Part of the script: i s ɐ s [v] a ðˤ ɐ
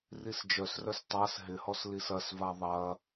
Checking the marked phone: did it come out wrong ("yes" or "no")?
no